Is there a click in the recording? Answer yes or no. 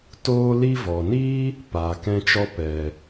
no